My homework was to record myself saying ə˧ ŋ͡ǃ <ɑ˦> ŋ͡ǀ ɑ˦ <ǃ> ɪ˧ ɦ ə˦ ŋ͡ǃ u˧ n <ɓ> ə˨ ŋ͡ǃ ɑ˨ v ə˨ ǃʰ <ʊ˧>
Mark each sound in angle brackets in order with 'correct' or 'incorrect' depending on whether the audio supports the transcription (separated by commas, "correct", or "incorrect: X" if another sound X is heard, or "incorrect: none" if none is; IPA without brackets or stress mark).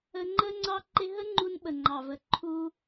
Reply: incorrect: ə˦, correct, correct, incorrect: u˧